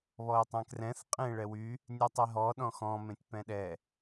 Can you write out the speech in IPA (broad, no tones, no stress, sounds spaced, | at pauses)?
β ɔ ɪ̯ tˤ ɛ̃ k r ɛ̃ θ qʼ ẽ ɭ ɛ w y | nʲ ɛ tˤ e ɦ ɔ ɗ ɔ̃ x ɔ̃ m ẽ tʲ p ɛ̃ ɗ ɛ